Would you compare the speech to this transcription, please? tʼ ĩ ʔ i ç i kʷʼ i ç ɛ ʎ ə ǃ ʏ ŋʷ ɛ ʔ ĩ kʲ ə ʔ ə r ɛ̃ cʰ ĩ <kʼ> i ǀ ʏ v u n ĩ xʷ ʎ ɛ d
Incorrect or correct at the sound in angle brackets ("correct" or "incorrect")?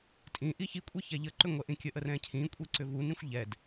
incorrect